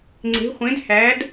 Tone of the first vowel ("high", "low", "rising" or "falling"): rising